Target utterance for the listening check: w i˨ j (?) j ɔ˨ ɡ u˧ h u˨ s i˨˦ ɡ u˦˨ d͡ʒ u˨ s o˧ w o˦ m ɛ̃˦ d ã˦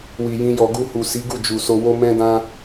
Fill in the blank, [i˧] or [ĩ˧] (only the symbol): ĩ˧